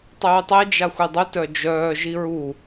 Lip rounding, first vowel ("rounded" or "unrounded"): rounded